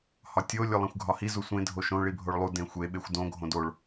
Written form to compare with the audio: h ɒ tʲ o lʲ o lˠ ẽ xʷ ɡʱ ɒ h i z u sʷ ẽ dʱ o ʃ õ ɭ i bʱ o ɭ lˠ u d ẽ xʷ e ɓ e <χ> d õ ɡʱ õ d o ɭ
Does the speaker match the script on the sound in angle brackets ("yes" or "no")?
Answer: no